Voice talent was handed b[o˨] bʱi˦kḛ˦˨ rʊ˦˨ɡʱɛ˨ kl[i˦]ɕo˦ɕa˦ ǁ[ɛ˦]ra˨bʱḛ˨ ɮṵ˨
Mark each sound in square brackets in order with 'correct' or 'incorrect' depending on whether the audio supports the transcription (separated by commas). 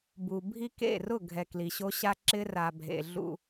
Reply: incorrect, incorrect, incorrect